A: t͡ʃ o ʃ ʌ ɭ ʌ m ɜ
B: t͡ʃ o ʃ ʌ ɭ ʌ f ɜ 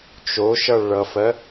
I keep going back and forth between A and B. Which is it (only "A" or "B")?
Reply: B